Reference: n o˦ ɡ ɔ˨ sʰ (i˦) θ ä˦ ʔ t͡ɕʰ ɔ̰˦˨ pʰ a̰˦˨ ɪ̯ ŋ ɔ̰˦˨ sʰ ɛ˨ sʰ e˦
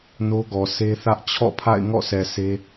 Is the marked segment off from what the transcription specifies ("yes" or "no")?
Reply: yes